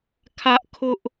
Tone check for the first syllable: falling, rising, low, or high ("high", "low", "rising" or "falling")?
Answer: high